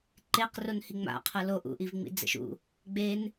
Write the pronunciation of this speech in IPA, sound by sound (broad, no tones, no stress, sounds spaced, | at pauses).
ǃ e q r o n h i ŋ͡m a̰ qʰ ɤ l o ʔ ṵ ʔ i v ŋ͡m ḭ d͡z ɛ̰ ʃ ṵ | ɡ͡b e n